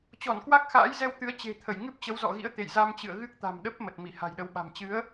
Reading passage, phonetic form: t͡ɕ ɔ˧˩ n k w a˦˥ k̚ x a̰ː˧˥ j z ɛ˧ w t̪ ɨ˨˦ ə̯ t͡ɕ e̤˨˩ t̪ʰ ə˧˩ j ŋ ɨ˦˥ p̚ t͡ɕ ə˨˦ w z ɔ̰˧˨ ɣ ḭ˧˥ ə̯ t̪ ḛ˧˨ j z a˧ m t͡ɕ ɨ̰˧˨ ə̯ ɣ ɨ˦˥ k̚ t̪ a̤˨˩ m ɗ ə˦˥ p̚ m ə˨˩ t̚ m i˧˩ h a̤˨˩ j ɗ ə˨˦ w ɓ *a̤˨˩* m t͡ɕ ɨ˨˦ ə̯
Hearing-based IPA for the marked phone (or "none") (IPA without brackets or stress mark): a̤˨˩